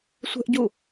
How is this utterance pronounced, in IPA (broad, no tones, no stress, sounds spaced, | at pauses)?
sʷ ɛ̤ ʔ ɟ u